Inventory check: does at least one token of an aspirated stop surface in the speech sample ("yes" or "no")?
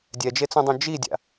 no